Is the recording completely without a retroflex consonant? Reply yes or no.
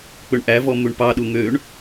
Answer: no